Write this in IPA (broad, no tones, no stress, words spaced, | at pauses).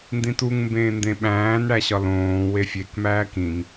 ndĩtuŋ mbẽːndẽɓæ̃ːn ɽæɕɒlõː wefʲek mæːkĩŋ